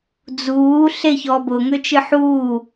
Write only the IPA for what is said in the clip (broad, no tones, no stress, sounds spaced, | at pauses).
d͡z uː ɬ e ç ɔ b ʊ ŋ ø t͡ʃ ɨ ħ uː